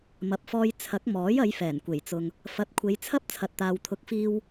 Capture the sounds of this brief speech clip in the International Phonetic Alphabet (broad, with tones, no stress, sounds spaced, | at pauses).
m ɐ˨˥ p̚ f ɔː˧ j t͡sʰ ɐ˨˥ k̚ m ɔː˨˥ j ɐ˨˧ j f ɛː˨˩ n kʷ e˨˩ j t͡s ʊ˨ ŋ | f ɐ˨˥ t̚ kʷʰ e˨˧ j t͡sʰ ɐ˥ p̚ t͡sʰ ɐ˨ t̚ t̪ aː˨ w t̪ʰ ʊ˨˥ k̚ f iː˧ w